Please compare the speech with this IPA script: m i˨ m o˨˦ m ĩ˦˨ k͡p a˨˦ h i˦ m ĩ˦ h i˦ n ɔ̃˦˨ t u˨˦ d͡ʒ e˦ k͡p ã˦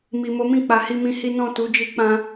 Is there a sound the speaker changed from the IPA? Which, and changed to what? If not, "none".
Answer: e˦ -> i˦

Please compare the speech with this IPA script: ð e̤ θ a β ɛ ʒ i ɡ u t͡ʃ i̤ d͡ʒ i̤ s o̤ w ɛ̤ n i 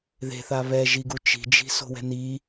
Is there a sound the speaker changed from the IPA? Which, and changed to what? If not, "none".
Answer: none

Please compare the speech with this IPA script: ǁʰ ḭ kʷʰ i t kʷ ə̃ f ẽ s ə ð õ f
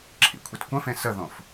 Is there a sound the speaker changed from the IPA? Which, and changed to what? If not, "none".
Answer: none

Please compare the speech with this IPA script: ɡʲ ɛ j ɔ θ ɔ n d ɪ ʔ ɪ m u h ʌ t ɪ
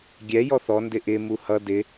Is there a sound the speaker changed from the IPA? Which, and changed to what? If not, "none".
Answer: t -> d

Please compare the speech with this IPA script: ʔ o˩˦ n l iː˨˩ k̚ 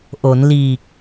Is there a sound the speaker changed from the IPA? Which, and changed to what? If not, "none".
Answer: none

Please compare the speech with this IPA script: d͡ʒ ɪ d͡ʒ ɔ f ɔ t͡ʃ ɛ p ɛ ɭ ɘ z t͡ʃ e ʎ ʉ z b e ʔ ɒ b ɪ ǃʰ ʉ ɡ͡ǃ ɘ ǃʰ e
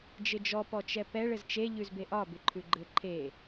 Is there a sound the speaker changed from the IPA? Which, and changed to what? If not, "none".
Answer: f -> p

